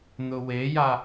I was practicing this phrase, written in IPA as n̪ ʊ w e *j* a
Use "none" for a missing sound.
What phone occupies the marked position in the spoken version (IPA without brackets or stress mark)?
j